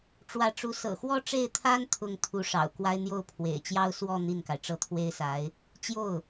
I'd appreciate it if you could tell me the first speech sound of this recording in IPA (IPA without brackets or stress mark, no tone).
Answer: ʈ͡ʂ